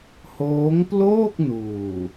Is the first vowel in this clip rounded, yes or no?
yes